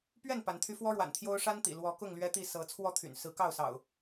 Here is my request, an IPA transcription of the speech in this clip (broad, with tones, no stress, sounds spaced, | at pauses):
p ɥ ɛ˥˨ n p a˨˦ n t̪ʰ y˦ f w ɔ˦ ɻ w a̰˨˩ n t̪ʰ j o˦ ʊ̯ ʂ a˦ n t̪ ḭ˨˩ l w ɔ˨˦ k ʊ˥˨ ŋ l ɥ ɛ˦ t̪ i˥˨ s ɤ˨˦ t͡sʰ w ɔ˥˨ t̪ʰ y̰˨˩ n s ɹ̩˨˦ k ɑ˥˨ ʊ̯ s ɑ̰˨˩ ʊ̯